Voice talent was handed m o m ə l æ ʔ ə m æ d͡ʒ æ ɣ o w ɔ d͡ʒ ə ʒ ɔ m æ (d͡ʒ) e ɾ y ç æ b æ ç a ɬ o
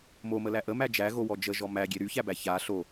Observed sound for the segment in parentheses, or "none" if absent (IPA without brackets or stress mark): ɡʲ